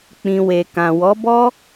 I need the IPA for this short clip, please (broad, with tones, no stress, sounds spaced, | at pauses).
k͡p ĩ˧ w e˨ k ã˨ w ɔ˨˦ b ɔ˦